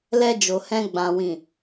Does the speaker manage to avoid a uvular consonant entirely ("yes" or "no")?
yes